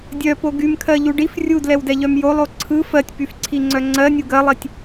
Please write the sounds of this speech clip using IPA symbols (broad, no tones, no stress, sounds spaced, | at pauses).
dʲ œ p o ɡ y m kʰ ɜ ʎ u ɖ i f rʲ u d l ɛ w d ɛ ʎ œ m j o lˠ o ǀʰ ɯ f ɜ tʲ p y f ǀʰ i ŋ͡ǀ œ ŋ͡ǀ ɜ nʲ u ɡ ɜ lˠ i tʲ